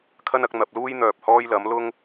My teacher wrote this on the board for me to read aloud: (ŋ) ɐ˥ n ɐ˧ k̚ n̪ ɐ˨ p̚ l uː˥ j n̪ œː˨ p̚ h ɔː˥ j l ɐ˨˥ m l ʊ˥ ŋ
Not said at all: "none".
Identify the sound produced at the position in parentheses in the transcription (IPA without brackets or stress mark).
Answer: kʰ